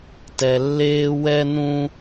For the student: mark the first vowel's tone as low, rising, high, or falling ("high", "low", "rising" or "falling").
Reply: low